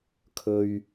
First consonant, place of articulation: velar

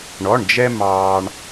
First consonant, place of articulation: retroflex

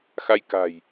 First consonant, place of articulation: velar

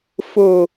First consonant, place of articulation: labial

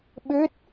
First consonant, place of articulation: labial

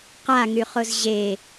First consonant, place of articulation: uvular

